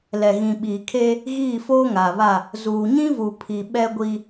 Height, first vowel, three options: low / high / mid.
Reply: mid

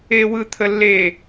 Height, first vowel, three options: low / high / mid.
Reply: mid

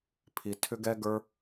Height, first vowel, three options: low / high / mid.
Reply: high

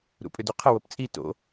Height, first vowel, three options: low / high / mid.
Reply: high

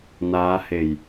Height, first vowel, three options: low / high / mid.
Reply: low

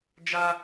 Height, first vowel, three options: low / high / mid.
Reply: low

